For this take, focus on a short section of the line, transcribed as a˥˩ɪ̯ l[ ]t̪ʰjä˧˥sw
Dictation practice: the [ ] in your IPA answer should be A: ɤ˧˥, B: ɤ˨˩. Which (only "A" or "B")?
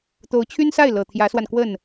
B